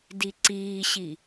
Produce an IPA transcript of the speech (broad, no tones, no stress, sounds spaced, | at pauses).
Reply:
d i ǀ iː ɕ i